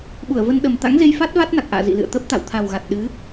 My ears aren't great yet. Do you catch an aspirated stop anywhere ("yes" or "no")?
yes